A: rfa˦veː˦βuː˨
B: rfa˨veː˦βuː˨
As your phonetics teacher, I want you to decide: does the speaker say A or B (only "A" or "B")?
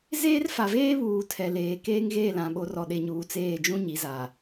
B